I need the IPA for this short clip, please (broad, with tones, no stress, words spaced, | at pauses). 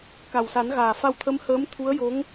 ka˨˩wsa˨˩˦nɣaː˨˩ fa˧wt̪ʰə˧˥mhəː˧˥m t̪ʰu˧˥ə̯jo˧˥ŋ